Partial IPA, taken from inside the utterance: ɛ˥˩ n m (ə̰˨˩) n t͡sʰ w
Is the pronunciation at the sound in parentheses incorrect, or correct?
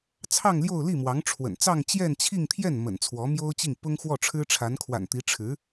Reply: correct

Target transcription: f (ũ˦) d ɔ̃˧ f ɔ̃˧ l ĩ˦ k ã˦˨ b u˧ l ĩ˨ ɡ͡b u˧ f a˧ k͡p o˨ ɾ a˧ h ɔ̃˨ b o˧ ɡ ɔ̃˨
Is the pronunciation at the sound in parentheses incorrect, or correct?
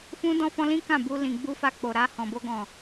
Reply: correct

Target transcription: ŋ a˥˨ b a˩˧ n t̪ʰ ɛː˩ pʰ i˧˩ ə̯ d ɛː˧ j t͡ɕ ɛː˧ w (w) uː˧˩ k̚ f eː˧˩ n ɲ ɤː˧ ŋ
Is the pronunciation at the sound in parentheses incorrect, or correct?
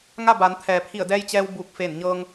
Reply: incorrect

